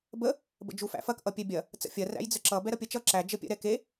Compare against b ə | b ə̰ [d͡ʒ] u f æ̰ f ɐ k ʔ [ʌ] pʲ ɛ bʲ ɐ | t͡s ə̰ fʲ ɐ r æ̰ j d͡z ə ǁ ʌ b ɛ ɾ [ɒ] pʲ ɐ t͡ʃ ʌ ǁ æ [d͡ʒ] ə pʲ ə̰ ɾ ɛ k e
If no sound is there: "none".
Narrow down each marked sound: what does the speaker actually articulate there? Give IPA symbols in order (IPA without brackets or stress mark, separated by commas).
d͡ʒ, ʌ, ʌ, d͡ʒ